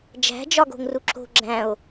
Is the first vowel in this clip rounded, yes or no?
no